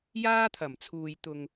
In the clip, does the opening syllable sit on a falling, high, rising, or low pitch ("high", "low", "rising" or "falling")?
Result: high